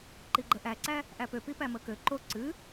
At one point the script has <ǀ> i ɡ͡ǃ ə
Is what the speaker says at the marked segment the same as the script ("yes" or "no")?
no